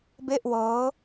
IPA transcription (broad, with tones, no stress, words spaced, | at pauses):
be˥˩ʔwɤː˦˥